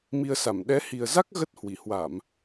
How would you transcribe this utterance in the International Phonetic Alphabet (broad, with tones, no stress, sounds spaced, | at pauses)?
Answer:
m i˧ ə̯ s a˧˩ m ɗ ɛ˨˦ h i˨˩ ə̯ z a˦˥ k̚ ɣ ə˦˥ t̚ h w i˧˩ h w a˧˩˨ m